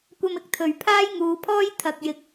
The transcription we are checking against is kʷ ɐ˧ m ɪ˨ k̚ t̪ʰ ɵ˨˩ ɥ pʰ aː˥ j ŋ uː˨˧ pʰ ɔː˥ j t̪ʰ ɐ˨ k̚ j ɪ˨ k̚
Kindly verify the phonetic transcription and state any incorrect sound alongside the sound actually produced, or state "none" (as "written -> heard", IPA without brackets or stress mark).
none